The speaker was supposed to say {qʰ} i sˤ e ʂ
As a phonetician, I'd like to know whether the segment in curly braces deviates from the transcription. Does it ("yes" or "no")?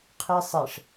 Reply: no